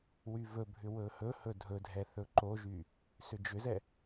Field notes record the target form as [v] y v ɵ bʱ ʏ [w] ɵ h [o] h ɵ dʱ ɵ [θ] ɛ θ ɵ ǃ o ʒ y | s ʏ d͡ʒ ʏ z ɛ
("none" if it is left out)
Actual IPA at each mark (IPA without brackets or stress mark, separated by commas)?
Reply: w, w, ɵ, dʱ